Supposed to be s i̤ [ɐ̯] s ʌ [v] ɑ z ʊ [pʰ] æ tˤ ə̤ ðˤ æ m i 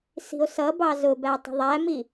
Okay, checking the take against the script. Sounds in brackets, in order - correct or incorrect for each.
incorrect: o̯, incorrect: b, incorrect: b

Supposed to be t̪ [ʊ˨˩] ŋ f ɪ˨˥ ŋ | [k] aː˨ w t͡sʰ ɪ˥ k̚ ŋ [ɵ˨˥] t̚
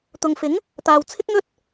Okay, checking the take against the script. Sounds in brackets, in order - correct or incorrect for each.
incorrect: ʊ˨, incorrect: t̪, incorrect: ɵ˥

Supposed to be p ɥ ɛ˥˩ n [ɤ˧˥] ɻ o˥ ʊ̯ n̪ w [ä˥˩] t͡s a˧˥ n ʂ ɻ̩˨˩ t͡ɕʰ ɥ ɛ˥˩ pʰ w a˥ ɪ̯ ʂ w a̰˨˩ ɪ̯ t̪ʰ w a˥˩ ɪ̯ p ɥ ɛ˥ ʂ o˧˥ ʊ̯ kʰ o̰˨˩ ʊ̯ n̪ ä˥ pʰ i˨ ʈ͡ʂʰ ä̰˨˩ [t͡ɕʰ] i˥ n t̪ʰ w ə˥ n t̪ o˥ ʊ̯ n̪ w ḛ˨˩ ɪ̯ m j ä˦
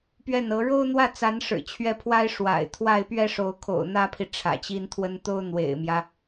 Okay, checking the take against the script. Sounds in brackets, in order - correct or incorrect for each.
correct, correct, incorrect: t͡ɕ

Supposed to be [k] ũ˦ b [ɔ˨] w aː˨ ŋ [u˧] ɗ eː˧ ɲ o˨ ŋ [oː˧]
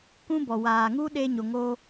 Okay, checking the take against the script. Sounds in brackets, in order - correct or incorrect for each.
correct, correct, incorrect: u˦, correct

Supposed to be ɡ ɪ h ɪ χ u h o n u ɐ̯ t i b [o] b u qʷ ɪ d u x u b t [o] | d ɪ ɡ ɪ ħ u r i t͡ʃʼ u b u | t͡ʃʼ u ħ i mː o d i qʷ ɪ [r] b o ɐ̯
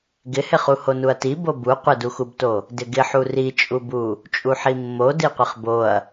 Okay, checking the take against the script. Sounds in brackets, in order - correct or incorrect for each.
correct, correct, incorrect: χ

